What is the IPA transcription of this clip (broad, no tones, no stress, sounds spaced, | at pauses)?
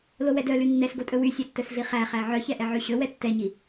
l o w ɛ d œ l y nː ɛ s ɡ o tʼ ɵ w y sʲ ɛ tː œ s ɮ i χ æ χ æ ʕ œ ç ɛ ʔ ɛ ʕ y ɕ ɵ w ɛ tː ɛ ɲ i